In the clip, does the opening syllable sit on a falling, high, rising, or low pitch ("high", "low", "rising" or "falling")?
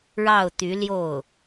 falling